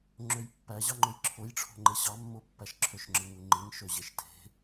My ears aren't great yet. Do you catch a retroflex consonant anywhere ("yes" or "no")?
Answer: yes